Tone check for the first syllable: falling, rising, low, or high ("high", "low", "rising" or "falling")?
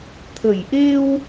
low